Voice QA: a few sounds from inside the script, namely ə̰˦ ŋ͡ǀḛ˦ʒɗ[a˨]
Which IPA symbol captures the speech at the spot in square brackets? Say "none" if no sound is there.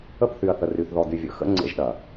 ɐ˨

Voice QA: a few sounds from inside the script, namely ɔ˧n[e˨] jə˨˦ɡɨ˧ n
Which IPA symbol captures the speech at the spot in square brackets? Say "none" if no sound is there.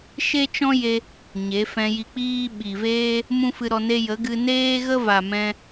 e˦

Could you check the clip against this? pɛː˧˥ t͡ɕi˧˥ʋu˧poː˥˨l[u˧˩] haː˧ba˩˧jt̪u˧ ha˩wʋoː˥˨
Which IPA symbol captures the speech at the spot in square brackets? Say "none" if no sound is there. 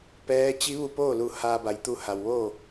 u˧˩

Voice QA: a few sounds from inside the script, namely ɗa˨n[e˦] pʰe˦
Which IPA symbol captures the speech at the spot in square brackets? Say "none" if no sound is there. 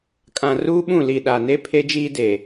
e˦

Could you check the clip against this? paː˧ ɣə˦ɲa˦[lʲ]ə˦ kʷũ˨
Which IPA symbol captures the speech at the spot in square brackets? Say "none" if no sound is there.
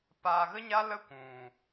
l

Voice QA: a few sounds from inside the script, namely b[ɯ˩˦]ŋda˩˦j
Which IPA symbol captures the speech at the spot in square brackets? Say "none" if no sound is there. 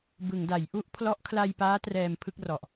ɯ˩˦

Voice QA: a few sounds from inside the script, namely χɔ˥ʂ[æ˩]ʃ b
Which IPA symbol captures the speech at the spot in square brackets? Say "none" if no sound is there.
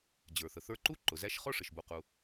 ə˩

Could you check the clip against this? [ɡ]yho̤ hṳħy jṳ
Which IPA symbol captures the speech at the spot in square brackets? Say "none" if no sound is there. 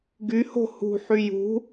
ɡ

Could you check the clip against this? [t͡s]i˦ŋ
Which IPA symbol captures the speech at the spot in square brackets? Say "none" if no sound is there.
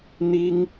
n̪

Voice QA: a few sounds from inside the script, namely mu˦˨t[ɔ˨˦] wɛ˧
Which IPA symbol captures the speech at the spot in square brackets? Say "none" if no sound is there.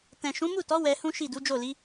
ɔ˨˦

